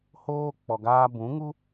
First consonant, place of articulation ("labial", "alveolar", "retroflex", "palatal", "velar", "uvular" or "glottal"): glottal